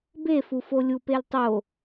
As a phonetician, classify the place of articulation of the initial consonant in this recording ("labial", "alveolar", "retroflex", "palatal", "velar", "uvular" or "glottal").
labial